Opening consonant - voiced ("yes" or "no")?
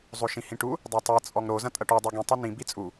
yes